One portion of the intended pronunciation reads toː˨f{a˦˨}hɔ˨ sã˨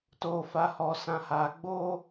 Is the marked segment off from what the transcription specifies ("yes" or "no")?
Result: yes